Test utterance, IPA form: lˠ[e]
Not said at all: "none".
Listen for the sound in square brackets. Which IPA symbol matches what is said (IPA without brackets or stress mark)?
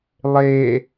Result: e